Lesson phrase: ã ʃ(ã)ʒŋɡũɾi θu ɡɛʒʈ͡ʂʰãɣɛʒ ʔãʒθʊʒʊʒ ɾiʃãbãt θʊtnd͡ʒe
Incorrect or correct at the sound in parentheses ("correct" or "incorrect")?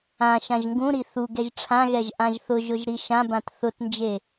correct